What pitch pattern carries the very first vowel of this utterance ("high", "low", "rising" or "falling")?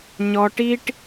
high